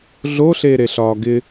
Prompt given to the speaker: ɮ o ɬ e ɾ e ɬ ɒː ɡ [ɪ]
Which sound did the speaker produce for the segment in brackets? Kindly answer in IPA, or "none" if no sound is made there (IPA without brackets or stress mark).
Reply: ɪ